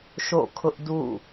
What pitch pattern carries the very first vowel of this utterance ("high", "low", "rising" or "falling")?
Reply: falling